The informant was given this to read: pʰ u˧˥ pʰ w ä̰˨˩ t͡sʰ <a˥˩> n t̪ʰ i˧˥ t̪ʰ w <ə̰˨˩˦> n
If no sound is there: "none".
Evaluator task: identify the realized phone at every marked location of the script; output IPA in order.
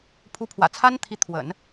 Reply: a˥, ə̰˨˩˦

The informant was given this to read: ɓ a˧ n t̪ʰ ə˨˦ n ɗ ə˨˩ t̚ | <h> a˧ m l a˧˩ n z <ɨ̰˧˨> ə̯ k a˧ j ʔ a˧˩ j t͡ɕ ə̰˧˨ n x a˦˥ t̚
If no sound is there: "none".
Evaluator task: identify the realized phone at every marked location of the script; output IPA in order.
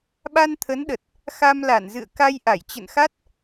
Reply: x, ɨ̰˧˨

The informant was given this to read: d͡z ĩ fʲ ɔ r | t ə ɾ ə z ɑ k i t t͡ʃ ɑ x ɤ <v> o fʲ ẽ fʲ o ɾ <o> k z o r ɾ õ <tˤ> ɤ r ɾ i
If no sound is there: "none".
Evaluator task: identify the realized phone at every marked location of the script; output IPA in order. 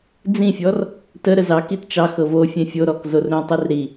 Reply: v, ɔ, tˤ

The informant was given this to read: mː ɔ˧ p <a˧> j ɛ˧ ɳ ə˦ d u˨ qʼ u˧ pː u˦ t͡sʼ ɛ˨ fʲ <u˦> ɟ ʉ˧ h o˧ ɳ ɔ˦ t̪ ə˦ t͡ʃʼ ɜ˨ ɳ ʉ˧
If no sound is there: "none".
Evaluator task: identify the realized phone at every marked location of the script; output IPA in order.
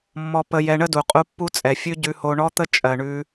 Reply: ə˧, ʉ˦

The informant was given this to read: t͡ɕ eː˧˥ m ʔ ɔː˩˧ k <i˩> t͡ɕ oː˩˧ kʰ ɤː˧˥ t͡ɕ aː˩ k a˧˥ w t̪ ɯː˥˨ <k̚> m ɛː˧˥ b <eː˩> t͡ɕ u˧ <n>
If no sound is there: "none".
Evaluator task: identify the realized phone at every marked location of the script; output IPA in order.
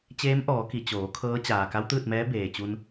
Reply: i˩, t̚, eː˩, n

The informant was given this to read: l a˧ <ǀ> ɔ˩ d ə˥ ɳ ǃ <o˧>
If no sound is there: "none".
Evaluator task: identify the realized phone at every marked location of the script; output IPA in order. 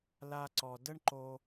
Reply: ǀ, o˧

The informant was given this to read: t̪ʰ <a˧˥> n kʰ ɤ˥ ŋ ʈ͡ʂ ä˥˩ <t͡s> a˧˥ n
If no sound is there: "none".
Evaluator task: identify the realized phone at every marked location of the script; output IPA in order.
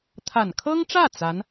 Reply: a˨˩, t͡s

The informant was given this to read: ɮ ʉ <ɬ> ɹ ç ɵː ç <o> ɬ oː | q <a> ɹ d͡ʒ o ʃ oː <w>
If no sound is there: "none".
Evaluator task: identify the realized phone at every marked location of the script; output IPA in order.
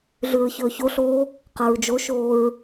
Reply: none, o, a, ɹ

